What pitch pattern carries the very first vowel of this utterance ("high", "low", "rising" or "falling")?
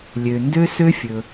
low